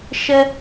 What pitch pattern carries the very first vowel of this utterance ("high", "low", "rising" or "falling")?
high